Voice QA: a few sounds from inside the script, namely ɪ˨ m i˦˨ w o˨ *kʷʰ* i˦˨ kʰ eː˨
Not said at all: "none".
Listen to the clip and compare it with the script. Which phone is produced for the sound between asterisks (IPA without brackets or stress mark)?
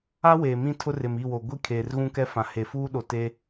ɡʷ